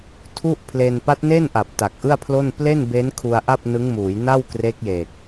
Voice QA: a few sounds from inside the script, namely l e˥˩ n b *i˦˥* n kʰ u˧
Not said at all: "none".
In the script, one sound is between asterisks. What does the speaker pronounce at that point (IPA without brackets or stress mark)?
e˦˥